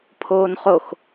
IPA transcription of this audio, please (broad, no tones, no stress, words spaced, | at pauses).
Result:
pʰoːnχox